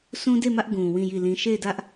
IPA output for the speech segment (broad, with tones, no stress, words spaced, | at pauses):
sʰũ˦de˦˨mä˦ʔ ɡũ˨ wĩ˦˨ji˦˨lĩ˦ ʃe˦˨ɪ̯dä˦ʔ